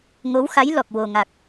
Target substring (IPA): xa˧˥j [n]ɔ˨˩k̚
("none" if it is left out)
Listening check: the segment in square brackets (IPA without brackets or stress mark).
l